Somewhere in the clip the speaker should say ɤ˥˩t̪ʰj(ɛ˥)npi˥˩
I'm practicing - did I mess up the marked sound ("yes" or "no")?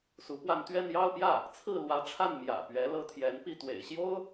yes